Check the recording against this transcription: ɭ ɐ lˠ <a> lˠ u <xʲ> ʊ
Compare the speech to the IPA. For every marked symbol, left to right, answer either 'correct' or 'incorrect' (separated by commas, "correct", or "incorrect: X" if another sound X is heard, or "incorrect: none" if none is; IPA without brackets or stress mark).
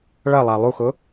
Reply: correct, incorrect: x